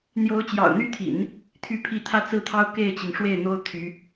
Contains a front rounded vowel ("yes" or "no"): yes